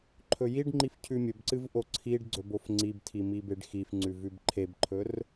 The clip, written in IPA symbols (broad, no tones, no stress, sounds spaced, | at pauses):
ǃʰ ɵ j i ɖ ŋ͡ǃ i f cʰ ʉ mʲ ɵ b ǀ ɨ v ʔ o ǀʰ i ɖ ɡ͡ǀ ɵ b o f ŋ͡ǀ i b tʰ i m i b e ɖ x i f ŋ͡ǀ ʉ v ʉ b ǃʰ e b ǃʰ ɵ r